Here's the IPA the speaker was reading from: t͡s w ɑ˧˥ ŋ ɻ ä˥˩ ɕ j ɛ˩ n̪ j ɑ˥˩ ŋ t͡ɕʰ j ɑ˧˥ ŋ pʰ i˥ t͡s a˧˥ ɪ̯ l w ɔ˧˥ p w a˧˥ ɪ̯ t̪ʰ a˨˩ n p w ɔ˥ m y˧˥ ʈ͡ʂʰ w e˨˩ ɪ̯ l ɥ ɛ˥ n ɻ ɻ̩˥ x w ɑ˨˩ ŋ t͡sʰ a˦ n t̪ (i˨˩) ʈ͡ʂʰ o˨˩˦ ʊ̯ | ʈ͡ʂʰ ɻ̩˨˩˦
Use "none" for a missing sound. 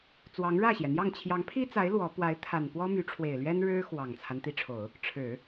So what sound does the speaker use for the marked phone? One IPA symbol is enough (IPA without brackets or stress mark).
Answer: i˧˥